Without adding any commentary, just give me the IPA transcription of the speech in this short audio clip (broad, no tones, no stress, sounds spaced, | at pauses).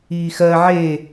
iː x ɜ ʕ e